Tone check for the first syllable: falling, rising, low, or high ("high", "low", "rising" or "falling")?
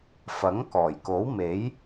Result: rising